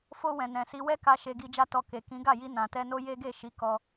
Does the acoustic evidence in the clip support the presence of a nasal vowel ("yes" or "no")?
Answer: yes